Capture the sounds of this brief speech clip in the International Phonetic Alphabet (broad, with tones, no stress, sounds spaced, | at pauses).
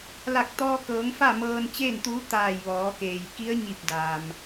l a˧˩ k̚ t̪ ɔː˧ k ɤː˩˧ ŋ f a˥˨ m ɤː˧ n t͡ɕ eː˥˨ n t̪ uː˧˥ t̪ aː˧˩ j ʋ ɔː˩˧ k eː˩ j k i˧˥ ə̯ ɲ i˧˩ p̚ d a˩ m